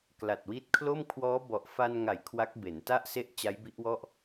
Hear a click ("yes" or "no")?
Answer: no